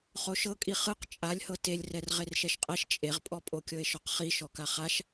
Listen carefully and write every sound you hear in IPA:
χ o ʃ ɤ kʼ i χ ɯ q t͡ʃʼ a lʲ h ɤ t e lʲ r ɛ r ʁ e r ʃ ɛ ʃ qʼ ɛ ʃ t͡ʃʼ e ʁ pʼ ɔ pʼ o kʲ ɤ e̯ ʃ ɔ q χ i ʃ ɔ k a χ a ʃ

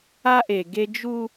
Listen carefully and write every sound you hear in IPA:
a˦ ʔ e˨ ɡ e˦ d͡ʒ u˦

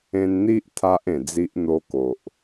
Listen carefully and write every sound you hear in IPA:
ẽ˧ n n̪ i˦ ʔ t̪ʰ a˦ ʔ ẽ˨˩ d͡z i˦ ʔ n̪ o˧ k o˨ ʔ

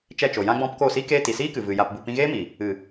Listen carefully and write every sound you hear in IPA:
t͡ʃ ɛ˦˨ t͡ʃ o˨ j ã˦ ɡ͡b ɔ̃˦ p k o˦˨ s i˦ k eː˦ t i˨ s iː˦ k ɨ˨ v ɨ˨ j a˨ p b u˨ p ĩ˧ ɣ eː˦ m i˨ | ɨ˨

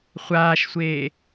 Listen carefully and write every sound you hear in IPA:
χʷ aː ʃ sʷ eː

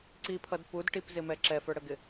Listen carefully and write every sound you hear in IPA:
ǀ i pʰ ʌ d p u d ʈ i p z ɪ m ɛ ǁ ɛ f ə˞ ɽ ə ɡ ɪ

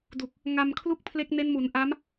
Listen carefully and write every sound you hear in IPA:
d u˨˩ k̚ | ŋ a˧ m kʰ l u˥˩ k̚ pʰ l e˦˥ k̚ n e˦˥ n m u˩˦ n ʔ a˦˥ m

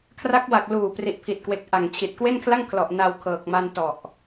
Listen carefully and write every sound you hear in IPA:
kʰ r a˦˥ k̚ w a˨˩ k̚ l uː˨˩ p r i˨˩ ʔ pʰ i˨˩ t̚ k w e˨˩ k̚ ʔ a˨˩ ŋ t͡ɕʰ i˨˩ t̚ k w e˥˩ n kʰ l a˥˩ ŋ kʰ l ɔ˨˩ ʔ n a˧ w kʰ ɤː˨˩ k̚ m a˧ n t ɔ˨˩ ʔ

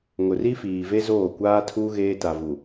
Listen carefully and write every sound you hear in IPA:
ŋ ʊ˨ r i˦ f iː˨ v e˦ z oː˦˨ kʷ aː˦ tʰ uː˦ ɣ eː˦ t a˨ v u˨

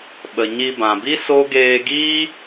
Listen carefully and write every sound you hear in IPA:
ɓ ə˨ ɲ i˧ b ã˨ b i˦ s o˦ ɡ eː˧ ɡ iː˦

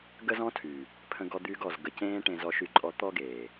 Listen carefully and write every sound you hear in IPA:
ɡ ə˦ z ɔ̃˦ tʰ y˨ | pʰ ə̃˧ ɡ ɔ˧ d̪ yː˧ ɡ ɔ˨ z ɡ ə˨ c ẽː˧ ʈ ẽ˧ z ɔ˧ ʃ y˧ ǃʼ ɔ˧ t̪ ɔ˦ ɡ eː˨

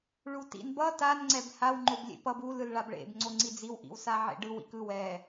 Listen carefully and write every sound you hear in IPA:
ɭ u t ḭ n b ʌ t a n ŋ͡ǀ ɛ b h a w ŋ͡ǃ o b lʲ ḛ p ʌ b u l ɯ l ɭ a b ɭ ḛ b ŋ͡ǀ o ŋ͡ǀ i d͡z i w ʔ ḭ w s a ʕ ḛ ɖ ɯ w ḭ k ɯ w ɛ

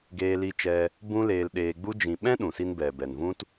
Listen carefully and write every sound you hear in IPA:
ɡ eː˧ l i˧ t͡ʃ ɛ˧ | b ũ˦ l eː˧ l ɗ eː˧ ɡ͡b u˦ d͡ʒ ĩ˨ ɓ ɛ̃˦ ɗ ũ˨ s i˧ n b ɛ˨ b ɛ˨ n v ũ˦ t

